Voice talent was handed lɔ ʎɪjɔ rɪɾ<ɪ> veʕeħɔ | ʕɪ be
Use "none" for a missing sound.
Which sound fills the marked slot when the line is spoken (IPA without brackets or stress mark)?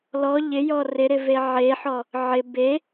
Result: ɪ